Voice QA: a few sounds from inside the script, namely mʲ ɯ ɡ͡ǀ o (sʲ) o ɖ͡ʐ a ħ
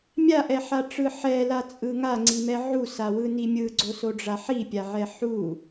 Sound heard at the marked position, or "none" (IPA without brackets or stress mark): s